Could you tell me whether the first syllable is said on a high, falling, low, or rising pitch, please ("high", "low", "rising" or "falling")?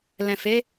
low